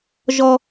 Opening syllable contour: high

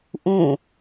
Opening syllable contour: falling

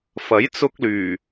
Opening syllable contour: rising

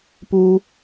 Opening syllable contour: high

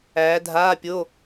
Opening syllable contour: rising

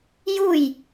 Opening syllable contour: falling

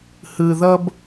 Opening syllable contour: low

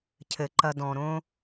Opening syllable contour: low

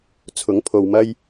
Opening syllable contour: rising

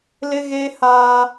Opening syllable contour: high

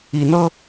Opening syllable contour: rising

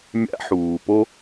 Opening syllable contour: high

